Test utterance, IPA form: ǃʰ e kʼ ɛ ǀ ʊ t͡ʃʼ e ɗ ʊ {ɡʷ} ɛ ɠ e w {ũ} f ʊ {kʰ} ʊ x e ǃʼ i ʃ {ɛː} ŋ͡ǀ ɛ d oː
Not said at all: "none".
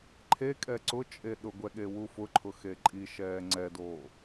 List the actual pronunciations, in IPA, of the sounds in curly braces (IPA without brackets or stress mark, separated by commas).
ɡʷ, u, ǃʰ, ɛː